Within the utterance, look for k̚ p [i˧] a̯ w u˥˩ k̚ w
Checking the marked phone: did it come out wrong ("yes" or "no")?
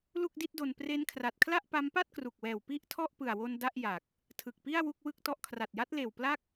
yes